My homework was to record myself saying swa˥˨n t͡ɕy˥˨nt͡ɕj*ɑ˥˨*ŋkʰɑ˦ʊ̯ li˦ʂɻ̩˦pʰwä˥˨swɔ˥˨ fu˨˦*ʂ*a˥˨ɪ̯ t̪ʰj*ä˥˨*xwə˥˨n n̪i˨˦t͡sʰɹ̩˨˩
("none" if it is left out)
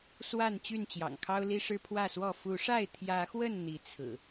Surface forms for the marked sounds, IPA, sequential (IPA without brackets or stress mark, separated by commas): ɑ̰˨˩, ʂ, ä˨˦